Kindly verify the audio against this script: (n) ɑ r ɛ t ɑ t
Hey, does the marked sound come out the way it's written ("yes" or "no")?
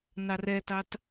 yes